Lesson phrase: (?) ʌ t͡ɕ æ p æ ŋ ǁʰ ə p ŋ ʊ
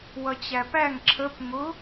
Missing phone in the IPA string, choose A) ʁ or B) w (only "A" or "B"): B